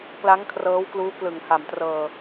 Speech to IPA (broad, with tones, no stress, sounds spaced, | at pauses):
k l a˦˥ ŋ kʰ r ɤː˦˥ w k l uː˦˥ k l ɯ˨˩ ŋ h a˨˩ m t r ɤː˨˩